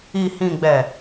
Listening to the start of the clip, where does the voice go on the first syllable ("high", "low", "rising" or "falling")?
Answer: low